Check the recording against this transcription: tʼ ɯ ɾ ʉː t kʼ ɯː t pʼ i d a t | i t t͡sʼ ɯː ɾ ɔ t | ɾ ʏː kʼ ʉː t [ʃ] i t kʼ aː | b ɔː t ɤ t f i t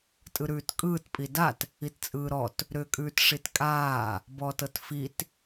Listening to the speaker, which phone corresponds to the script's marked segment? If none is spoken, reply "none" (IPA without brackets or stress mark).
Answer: ʂ